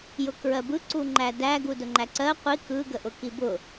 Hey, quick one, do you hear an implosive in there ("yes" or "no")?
no